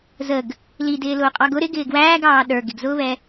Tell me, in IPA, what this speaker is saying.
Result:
zəɡ | lidɪː lʊːqʼɑɡʊ ɾɪ ɡɪːɡwæːɡɑː ɗə˞ ɡɪɡzʊːβɛ

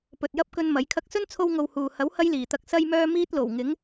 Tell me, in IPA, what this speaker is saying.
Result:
pɵ˨t̚jɐ˥p̚kɵ˧n mɐ˨˥jkʰɐ˥k̚ sɵ˥nt͡sʰo˧wŋo˨w huː˨ hɐ˨˥w hɐ˥jliː˨˩t̪ɐ˧k̚ sɐ˥jmœː˥ miː˥t̚lo˨˩w ŋɪ˨˥ŋ

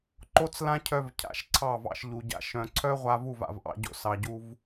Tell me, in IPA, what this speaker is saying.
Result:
ǃo˦t͡s lã˦cʰœ˧vcʰa̰˨ʃ ǀʰɑ˦˨vɑ̰˧ʃ ʎu˨ɟa̰˧ ʃœ̃˨ǀʰœ˦ʁʷa˧ vu˦˨va̰˨vʔɑ̰˧ɟo̰˧ sɑ˨ɟu˧v

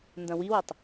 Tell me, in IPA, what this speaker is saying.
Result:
ndɐ̃wiwɐtˤ

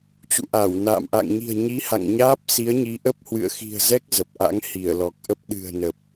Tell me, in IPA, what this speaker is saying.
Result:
t͡ɕṵ˧˨ʔa˧˩wna̰ː˧˨m ʔa̰˧˨ŋɲi̤˨˩ə̯ɲi˨˦ ha̰˧˨ŋ ɲaː˦˥p̚si˨˦ə̯ɲi˨˦ʔə˦˥p̚ hwɨ̰˧˨ə̯xi̤˨˩ə̯zɛ˦˥k̚ zə˨˩p̚ʔa̰˧˥ŋ hi˧˩ə̯lɔ˨˩k̚ʔə˦˥p̚ ɗɨ̤˨˩ə̯nə˨˩p̚

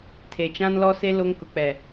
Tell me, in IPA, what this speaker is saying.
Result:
tʰe˨t͡ʃã˦nlɔ˦se˦ lo˦ŋkʊ˨k͡pɛ˨

